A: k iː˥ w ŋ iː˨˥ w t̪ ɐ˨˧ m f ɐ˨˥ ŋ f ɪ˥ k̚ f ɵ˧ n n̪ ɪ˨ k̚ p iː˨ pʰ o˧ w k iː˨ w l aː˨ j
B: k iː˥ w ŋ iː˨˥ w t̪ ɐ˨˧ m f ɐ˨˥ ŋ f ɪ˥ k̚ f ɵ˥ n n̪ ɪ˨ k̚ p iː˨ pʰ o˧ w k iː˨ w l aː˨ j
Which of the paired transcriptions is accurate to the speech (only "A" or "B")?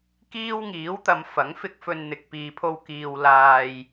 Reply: A